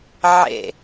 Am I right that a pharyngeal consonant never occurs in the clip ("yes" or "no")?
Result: no